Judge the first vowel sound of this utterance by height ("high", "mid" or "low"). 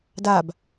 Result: low